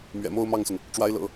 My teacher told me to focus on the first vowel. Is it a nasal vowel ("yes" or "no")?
no